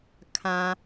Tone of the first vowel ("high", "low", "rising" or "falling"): low